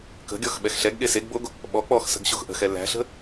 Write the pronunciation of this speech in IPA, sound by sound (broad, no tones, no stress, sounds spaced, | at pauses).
k ə̤ ɡʲ ɔ x ɓ ɛ x ɬ ɛ ɡ ɠ e s e ɡ b o ɡ | ɓ ɔ k͡p ɔ x s ə̤ ɡ ɕ o x ʔ ə̤ x ɛ l æ̤ ɬ ə̤